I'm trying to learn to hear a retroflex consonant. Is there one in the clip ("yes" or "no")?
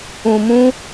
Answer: no